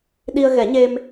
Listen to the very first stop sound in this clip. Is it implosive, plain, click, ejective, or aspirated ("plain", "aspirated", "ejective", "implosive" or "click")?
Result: implosive